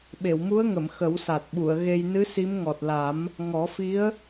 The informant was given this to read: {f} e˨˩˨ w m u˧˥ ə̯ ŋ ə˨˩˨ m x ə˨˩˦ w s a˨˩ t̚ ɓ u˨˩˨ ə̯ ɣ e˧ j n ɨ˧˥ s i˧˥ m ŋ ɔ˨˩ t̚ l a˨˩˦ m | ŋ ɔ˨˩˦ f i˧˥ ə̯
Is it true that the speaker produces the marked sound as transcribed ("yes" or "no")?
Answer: no